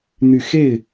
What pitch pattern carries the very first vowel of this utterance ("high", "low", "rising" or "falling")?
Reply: low